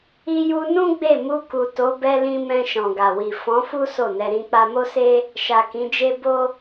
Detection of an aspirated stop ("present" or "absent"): absent